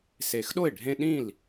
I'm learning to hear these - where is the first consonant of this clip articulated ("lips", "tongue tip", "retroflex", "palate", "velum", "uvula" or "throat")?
tongue tip